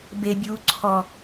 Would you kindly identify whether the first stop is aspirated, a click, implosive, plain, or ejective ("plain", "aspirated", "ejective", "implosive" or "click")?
plain